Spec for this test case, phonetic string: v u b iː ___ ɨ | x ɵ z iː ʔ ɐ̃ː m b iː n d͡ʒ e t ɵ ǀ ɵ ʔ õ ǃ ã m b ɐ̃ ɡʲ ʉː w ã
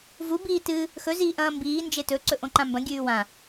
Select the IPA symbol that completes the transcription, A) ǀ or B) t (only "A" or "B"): B